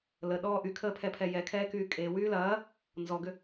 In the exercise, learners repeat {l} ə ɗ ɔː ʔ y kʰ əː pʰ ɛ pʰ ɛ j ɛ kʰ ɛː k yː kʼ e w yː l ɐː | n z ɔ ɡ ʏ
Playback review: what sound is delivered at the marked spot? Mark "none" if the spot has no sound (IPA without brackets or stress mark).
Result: l